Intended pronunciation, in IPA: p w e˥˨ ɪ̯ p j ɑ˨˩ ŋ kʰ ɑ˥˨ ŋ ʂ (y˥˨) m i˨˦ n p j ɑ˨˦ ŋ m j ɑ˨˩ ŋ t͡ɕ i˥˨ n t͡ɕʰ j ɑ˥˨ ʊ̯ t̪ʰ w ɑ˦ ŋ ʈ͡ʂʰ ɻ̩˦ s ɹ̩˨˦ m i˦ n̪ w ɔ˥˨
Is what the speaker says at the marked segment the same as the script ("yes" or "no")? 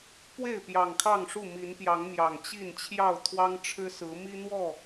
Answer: no